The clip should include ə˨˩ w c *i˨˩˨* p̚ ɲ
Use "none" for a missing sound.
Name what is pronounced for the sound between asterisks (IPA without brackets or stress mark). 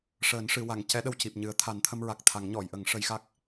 i˨˩